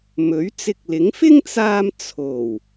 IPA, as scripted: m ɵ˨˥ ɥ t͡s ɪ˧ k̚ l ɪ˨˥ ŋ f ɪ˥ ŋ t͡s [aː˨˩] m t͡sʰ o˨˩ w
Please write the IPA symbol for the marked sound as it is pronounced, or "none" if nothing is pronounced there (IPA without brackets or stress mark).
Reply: aː˧